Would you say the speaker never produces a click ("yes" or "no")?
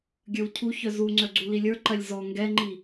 no